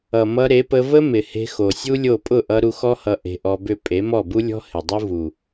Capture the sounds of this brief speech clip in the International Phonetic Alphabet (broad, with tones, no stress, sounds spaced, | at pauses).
ʌ˨ m ʌ˧ ɾ e˨˦ p ə˧ v ə˦ m ɪ˨ h e̤˧ x o˨ sʲ u˦ lʲ o˦˨ pʼ ʊ˦˨ ʔ ʌ˧ ɾ u˧ x ɔ˦ h ʌ˧ ʔ e̤˧ ʔ ɔ˧ b ʏ˦˨ pʼ e˨˦ m ɔ˦˨ b u˦ lʲ ɔ̤˦ h ɪ˨ dˤ o˦ v u˨